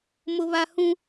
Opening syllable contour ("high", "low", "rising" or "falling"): high